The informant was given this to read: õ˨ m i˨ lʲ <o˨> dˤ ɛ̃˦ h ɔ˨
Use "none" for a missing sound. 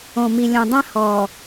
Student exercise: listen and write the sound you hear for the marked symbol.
õ˨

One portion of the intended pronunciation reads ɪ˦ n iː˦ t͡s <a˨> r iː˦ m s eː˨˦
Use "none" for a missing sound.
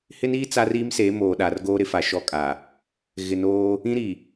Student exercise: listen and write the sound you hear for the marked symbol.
a˦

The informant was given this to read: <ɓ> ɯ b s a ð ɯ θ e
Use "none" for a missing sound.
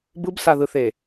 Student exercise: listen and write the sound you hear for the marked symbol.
b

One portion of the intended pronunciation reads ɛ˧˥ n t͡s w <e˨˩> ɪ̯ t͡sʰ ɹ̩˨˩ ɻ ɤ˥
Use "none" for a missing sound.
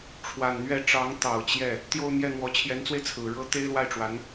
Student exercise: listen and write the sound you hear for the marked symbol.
e˧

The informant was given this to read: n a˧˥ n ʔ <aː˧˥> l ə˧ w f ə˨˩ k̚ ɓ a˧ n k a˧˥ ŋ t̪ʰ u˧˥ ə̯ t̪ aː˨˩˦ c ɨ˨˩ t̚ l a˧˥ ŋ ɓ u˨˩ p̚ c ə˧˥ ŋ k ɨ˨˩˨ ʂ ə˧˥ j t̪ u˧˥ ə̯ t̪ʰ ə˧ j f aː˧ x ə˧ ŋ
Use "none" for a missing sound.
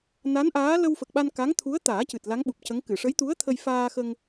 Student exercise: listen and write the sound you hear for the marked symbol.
aː˧˥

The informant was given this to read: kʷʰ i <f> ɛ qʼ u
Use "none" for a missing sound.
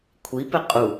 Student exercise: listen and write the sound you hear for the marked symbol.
p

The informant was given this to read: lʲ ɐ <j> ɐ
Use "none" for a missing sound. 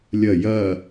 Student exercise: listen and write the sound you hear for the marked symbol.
j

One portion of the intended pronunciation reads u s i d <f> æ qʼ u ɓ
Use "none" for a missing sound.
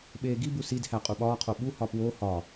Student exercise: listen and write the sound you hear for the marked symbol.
h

